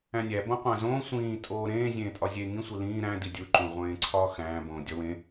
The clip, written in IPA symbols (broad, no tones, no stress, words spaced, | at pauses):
æ̃nʲæ bõqʷæ̃zõː sʷĩː tʼoːɾẽː zʲẽːtʼɒzʲe ŋĩ sʷilĩː ɾæ̃ didʲu ǃũʁʷẽːǀʰɒːxæ̃ː bõːdʲɒwẽ